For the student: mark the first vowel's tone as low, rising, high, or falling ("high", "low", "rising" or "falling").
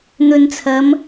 low